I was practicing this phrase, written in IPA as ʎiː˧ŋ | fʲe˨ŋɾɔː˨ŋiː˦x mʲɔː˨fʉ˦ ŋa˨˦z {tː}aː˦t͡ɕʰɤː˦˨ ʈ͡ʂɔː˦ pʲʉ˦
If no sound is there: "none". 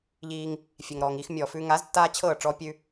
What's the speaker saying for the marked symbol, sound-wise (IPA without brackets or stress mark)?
tː